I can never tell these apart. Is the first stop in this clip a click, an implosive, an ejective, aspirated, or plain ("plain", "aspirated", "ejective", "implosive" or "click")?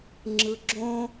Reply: click